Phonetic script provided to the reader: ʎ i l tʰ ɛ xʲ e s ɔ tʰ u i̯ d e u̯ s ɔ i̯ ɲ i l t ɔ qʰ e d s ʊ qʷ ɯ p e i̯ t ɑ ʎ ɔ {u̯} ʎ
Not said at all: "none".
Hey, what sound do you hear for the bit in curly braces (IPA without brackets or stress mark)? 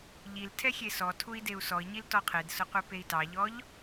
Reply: none